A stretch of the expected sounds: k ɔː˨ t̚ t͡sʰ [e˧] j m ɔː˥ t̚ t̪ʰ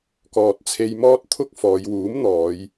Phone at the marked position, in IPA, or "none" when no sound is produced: e˧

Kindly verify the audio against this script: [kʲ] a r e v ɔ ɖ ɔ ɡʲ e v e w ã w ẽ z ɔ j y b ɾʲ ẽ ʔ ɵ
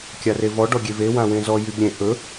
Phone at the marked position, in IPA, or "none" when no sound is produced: kʲ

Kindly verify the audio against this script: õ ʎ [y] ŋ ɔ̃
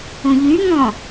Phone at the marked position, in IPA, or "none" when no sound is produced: y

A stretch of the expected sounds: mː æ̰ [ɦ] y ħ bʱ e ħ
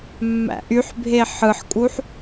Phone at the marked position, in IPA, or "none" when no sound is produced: ʔ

